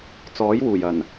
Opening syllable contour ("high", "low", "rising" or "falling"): rising